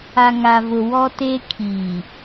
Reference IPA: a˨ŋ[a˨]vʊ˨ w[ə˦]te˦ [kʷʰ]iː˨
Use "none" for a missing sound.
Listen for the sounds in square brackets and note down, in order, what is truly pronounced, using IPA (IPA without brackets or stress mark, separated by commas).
a˨, ɔ˦, kʰ